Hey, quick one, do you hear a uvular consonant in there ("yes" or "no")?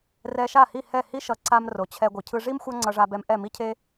no